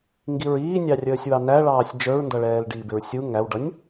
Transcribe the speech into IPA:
ŋɡiɹiːnʲɑrʲəːsʲ wɑnæɭɑːsʲ d͡ʒə˞ɹndʌɭɛːl ɖiːbɪɹsʲu ŋæwɖʌnʲ

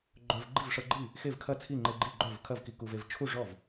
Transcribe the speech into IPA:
ɡ͡ǃœ˧v ɡ͡ǃi˥˩vʂɤ˧ɡ͡ǃi˥˩ | xe˥˩vkʰɐ˥˩ t͡sʰi˥˩ŋ͡ǃe˧ ɡ͡ǃi˥˩ɡ͡ǃœ˥˩vkʰɐ˥˩v ki˧ ku˧ve˧v t͡ʃʰu˥˩ʐɔ˥˩v

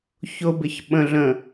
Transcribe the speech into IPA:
çʊbɪçɓə̃ɮə̃

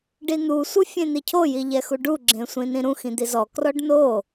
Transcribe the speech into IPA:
ɖin̪u sʷɯfʲẽn̪icʰo jiʎɛxuɖu ɡ͡ǁẽsʷĩnĩɾũx ĩd̪izɔ krɔɖno

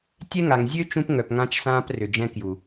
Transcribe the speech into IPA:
tʲɛ˦ŋa˨ŋ zʲø˦ t͡ʃũ˦pŋœ˨pŋã˦t͡ʃsãː˦p rʏ˨ d͡ʒɛ̃˦ kju˨

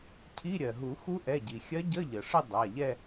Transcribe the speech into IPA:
cʰi˧˥˧ ɾʲɜ˩ɦu˨˩˦ xu˧˥ʔɛ˩˧˩ɟi˩xʲɜ˧˥ ɟə˧˥˧ʎə˩ʂə˥˧ dˤa˩˧˩ʎɛ˥˧

